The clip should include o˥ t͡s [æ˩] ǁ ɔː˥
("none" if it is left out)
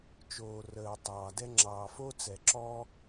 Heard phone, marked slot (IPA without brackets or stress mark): ɛ˩